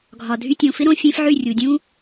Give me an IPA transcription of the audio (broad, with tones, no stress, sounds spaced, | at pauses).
ɡʱ ɒ˨ dʱ y˧ tʲ õ˨ f ɪ˦ ɾ õ˧ fʲ ẽ˦ f ʕ y˦˨ rʲ u˨ dʲ ũ˦